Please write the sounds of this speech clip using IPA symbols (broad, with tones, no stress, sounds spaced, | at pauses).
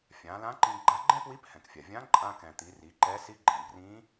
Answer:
fʲ ã˩˧ l ã˧˥ ǃ ĩ˧ ɡ͡ǃ a˧ ɡ͡ǃ ɛ̃˥ p w i˧˥ p h ɛ̃˩ k fʲ a˩ vʲ ã˧˥ ǃʼ ã˧ k ɛ̃˩ t̪ i˩˧ r i˩˧ ǃ ɛ˧˥ s i˧˥ ɡ͡ǃ ɛ̃˩ b r ĩ˧˥